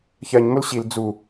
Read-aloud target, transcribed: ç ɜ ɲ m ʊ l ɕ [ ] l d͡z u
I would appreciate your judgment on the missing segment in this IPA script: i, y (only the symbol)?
i